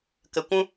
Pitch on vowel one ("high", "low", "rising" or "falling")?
low